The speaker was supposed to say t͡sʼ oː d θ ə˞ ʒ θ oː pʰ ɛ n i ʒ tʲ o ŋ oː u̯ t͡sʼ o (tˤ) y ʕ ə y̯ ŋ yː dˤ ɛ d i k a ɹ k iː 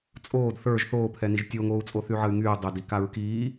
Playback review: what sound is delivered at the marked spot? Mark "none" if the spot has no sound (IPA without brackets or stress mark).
θ